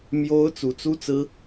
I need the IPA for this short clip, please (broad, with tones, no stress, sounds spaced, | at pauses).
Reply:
m j o˦ ʊ̯ t͡s u˨˦ t͡s u˦ t͡s ɹ̩˦